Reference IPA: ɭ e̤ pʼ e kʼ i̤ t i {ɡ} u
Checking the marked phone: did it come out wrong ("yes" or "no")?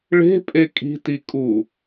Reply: yes